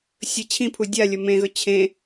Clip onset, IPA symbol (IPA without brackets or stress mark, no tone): sʲ